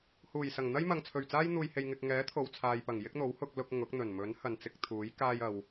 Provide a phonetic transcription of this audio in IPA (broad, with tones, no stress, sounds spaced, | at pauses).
h uː˨˩ j s ɐ˨˩ ŋ n̪ ɐ˥ j m ɐ˨ ŋ t͡sʰ ɵ˨˩ ɥ t͡s aː˥ j n̪ uː˧ j h e˧ j ŋ ɪ˧ k̚ ŋ ɛː˨˥ t̪ʰ o˨ w t͡sʰ aː˨ j p ɐ˨˩ ŋ j ɪ˥ k̚ n̪ o˨˥ w h ʊ˧ k̚ l ʊ˧ k̚ ŋ ʊ˨˥ k̚ n̪ ɵ˨˩ n m ɵ˨˥ n h ɐ˨ n t͡s ɪ˧ k̚ t̪ʰ uː˨˥ j k aː˧ j ɐ˨ w